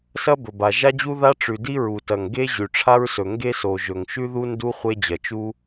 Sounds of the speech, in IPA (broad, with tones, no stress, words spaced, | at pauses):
sɐ˥bɵ˩ba˩ ʒa˥d͡ʑu˥ða˥ ʈ͡ʂʉ˩di˥ ɹu˩tɐ˩ŋ ɡe˥ ʑʉ˩ʈ͡ʂʰa˥ɹsɵ˩ ŋɡe˥so˩ʒɵ˩ŋ ʃʉ˥ðu˥ ndu˥ χʷe˥d͡ʑɐ˩t͡ʃu˥